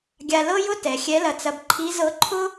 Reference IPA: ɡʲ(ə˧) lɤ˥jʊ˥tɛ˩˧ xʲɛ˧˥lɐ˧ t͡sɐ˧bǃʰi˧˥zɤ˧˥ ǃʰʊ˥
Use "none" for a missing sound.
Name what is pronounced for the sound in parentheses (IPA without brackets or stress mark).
a˧